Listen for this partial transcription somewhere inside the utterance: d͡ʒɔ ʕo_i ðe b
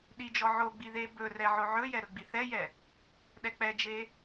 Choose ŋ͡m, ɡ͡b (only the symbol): ɡ͡b